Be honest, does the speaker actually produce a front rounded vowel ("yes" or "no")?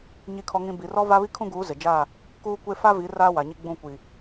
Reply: no